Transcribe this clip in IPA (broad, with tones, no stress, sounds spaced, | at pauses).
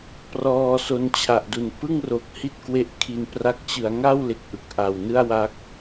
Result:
p r ɔː˧ s o˧ n t͡ɕʰ a˨˩ ʔ d u˨˩ n p ɯ˥˩ ŋ r o˨˩ k̚ h i˥˩ t̚ k w e˦˥ ʔ kʰ i˧ n p r a˦˥ k̚ t͡ɕ ɯ˩˦ a̯ ŋ a˥˩ w l e˨˩ k̚ ʔ ɯ˨˩ k̚ ʔ a˨˩ w n ɯ˥˩ a̯ w a˦˥ k̚